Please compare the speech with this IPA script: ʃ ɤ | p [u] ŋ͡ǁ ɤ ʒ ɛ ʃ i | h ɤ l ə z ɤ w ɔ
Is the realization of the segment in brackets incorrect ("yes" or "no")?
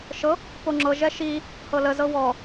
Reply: yes